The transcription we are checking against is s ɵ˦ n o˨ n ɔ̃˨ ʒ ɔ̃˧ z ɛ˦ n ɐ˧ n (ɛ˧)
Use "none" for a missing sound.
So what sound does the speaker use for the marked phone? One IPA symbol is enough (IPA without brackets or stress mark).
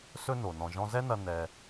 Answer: ɛ˧